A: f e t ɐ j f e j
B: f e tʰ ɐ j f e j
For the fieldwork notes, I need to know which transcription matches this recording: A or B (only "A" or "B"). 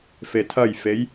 B